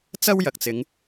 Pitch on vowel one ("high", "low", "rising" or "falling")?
high